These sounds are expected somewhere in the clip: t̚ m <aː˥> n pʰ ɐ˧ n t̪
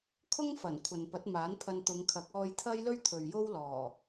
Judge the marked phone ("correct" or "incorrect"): incorrect